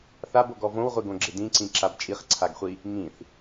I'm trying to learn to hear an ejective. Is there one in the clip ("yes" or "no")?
yes